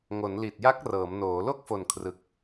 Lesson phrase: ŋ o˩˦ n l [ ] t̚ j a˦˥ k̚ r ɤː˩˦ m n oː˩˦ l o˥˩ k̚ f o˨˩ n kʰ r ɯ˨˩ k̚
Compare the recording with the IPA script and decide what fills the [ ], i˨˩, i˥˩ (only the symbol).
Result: i˨˩